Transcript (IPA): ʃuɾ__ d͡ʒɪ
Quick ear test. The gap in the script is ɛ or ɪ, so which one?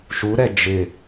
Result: ɛ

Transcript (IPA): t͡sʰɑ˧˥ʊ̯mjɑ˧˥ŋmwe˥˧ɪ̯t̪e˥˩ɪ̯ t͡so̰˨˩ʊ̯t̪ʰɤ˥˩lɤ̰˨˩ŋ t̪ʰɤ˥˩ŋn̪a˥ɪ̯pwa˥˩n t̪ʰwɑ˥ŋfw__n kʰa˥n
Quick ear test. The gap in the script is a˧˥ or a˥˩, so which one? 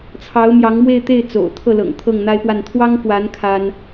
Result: a˧˥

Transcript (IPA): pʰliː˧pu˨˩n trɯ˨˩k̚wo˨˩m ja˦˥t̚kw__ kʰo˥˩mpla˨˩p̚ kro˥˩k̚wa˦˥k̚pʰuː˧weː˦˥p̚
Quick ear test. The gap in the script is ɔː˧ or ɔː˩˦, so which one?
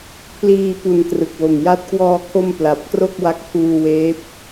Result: ɔː˧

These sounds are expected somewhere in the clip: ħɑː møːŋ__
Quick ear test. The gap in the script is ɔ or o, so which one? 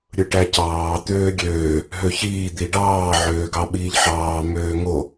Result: o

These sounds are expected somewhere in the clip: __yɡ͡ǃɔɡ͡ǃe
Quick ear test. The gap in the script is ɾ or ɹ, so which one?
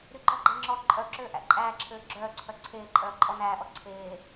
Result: ɾ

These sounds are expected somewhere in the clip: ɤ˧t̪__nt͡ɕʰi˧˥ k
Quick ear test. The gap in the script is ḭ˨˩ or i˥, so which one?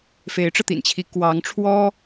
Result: ḭ˨˩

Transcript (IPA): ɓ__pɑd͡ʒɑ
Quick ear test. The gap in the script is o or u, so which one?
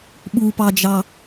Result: u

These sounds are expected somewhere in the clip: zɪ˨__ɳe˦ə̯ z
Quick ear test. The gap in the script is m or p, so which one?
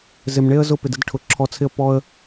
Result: m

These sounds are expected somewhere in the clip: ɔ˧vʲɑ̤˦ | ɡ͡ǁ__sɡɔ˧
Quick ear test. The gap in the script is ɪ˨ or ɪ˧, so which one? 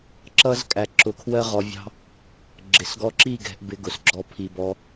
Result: ɪ˨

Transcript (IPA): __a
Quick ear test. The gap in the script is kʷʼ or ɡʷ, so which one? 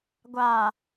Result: ɡʷ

